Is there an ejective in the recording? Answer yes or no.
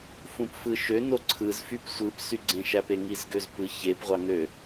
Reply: no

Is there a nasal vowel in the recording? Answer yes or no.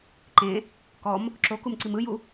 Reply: yes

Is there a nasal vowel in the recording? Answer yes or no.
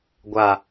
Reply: no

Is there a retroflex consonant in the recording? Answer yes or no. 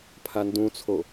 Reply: no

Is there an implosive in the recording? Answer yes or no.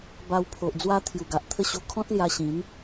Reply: no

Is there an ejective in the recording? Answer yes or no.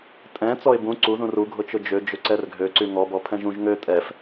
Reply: yes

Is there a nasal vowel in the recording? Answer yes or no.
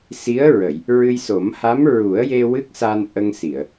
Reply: no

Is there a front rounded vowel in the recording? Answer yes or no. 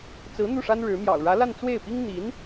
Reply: no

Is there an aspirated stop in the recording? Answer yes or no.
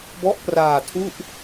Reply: yes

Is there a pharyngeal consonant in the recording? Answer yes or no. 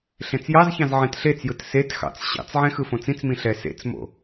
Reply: yes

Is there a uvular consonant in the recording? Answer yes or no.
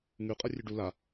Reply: yes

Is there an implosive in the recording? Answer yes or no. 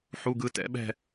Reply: yes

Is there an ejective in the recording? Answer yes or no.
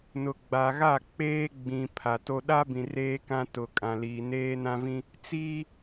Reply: yes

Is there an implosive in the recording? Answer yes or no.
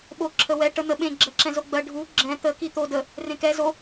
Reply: yes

